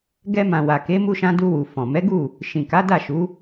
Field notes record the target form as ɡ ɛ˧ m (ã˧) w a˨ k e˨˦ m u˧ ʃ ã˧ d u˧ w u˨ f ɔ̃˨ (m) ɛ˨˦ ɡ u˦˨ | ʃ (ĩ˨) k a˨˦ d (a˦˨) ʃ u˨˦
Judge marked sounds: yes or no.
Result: no, yes, yes, yes

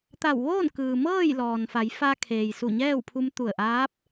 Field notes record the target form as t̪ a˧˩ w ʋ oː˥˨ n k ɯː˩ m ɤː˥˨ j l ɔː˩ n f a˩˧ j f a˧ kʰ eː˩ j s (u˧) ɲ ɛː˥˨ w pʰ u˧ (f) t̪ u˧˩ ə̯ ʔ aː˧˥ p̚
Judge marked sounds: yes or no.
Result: no, no

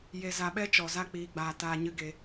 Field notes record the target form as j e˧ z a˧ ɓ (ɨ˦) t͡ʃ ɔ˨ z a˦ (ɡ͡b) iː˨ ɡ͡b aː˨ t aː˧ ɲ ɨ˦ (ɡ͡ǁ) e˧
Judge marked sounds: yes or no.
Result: no, no, no

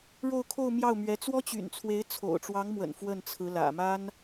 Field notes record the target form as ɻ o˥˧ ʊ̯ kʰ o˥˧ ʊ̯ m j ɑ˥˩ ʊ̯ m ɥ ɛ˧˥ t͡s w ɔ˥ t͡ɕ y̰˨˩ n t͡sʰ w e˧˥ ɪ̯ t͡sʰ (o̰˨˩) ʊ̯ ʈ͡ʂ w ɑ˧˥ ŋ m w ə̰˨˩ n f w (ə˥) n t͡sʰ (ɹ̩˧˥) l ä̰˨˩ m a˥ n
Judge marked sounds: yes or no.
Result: yes, no, yes

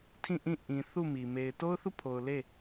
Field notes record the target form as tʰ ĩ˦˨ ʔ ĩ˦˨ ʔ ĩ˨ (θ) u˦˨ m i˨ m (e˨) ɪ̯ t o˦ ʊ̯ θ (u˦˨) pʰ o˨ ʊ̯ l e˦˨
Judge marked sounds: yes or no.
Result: yes, yes, yes

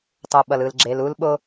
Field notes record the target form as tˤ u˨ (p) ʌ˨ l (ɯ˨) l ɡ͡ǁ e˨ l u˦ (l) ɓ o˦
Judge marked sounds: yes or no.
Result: no, yes, yes

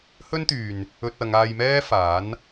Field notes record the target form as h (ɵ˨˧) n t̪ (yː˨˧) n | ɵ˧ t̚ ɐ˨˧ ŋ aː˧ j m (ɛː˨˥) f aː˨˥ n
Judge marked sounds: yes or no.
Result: no, no, no

